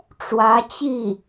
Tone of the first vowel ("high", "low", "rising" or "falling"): rising